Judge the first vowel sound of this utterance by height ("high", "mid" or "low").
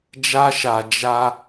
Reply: low